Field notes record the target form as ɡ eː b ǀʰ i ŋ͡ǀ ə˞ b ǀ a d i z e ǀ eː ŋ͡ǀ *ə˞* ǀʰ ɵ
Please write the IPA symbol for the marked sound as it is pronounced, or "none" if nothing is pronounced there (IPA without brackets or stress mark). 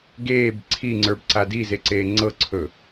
ɤ